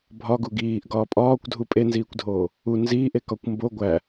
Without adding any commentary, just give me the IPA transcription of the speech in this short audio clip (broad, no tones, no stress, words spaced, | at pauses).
bʱɒɡu ɡiːʔ ɡɒːpʼɒːkʷdʱu pʼenziːkʷdʱoː | u nziːʔe kɒkʷmbo ɡʷæ